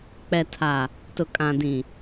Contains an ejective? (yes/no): yes